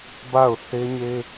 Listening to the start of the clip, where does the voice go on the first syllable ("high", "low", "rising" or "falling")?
falling